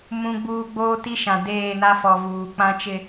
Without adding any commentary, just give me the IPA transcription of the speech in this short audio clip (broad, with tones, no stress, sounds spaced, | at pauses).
m ũ˨ ɡ͡b uː˨ ɡ͡b oː˦ t i˦ ʃ ã˨ d eː˦˨ n a˦ f ɔ˨ v uː˨ k͡p ã˦ t͡ʃ ɪ˦